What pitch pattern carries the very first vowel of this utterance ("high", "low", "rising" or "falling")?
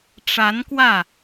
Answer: rising